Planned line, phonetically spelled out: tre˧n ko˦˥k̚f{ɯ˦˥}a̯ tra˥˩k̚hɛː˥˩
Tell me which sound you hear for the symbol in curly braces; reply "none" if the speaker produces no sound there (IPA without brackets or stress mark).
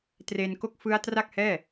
ɯ˦˥